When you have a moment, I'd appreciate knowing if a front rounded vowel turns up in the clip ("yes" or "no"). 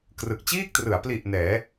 no